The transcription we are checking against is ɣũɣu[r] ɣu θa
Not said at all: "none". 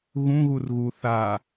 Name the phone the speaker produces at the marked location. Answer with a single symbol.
r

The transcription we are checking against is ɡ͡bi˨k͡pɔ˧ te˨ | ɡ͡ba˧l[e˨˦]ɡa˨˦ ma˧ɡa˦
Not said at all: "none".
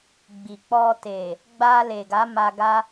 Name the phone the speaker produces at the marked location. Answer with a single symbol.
e˨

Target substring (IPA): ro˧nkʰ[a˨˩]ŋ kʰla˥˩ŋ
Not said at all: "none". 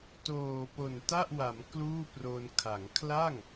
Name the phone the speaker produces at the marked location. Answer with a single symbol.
a˩˦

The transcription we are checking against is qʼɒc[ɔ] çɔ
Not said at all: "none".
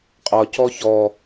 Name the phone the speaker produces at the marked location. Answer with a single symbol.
ɔ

